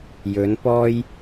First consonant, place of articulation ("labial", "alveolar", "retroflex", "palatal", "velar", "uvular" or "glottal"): palatal